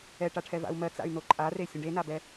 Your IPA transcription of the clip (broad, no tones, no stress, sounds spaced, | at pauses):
ɛ ʈ a ʈʰ ɛ v a̰ u̯ m ɜ t͡s a̰ y̯ n o ǃʼ a r e sʲ ə̃ ɖ e n a b ɛ